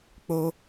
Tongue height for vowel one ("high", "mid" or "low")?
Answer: mid